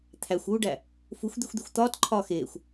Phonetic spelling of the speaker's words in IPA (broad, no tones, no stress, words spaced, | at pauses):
t̪ʰæxʷuːɖæ | fuxʷd̪ixʷd̪ixʷ t̪ɒːt ǃʰɒːxeːxʷ